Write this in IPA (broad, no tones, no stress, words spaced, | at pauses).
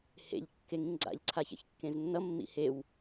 hḛʎ kːeŋĩŋɡ͡ǀa̰ʎ ǀʰaçɛ̰çkːẽznːʌ mːḭhew